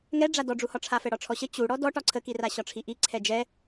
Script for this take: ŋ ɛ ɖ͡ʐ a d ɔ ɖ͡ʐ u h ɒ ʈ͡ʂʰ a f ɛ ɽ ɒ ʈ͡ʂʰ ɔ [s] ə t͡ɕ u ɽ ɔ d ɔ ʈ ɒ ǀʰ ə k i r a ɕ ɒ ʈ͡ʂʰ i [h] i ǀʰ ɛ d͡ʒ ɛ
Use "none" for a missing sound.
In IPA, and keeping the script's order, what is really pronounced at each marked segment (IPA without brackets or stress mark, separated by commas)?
ɕ, ʔ